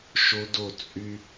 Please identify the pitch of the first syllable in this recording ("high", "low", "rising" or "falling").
high